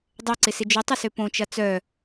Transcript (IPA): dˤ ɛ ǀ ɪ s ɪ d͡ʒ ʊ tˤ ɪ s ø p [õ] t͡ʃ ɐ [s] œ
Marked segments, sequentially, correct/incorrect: correct, incorrect: t͡s

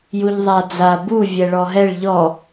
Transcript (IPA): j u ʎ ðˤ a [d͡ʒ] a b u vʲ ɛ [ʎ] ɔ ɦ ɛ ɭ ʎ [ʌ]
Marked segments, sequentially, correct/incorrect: incorrect: d͡z, incorrect: ɭ, incorrect: ɔ

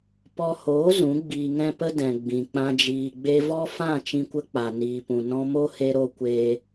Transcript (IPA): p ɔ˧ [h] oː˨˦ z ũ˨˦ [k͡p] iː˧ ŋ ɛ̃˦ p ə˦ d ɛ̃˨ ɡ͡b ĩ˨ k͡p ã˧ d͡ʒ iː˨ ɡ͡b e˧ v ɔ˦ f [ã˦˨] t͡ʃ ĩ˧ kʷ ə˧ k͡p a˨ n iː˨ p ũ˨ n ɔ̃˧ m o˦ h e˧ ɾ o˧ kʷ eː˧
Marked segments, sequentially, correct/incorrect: correct, incorrect: ɡ͡b, correct

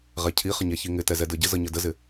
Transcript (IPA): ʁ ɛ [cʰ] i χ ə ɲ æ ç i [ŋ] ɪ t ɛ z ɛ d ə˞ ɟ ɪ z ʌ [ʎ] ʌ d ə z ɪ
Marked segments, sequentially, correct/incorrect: correct, correct, incorrect: ɲ

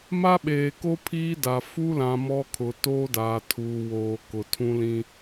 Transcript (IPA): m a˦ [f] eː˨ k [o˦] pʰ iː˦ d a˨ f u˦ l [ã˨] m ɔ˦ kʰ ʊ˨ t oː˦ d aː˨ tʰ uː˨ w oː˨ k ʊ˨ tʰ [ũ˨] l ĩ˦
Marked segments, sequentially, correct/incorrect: incorrect: ɓ, correct, correct, incorrect: ũ˦

